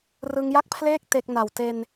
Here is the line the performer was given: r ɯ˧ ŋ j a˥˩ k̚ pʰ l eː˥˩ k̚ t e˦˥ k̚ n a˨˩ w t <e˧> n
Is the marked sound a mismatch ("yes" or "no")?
no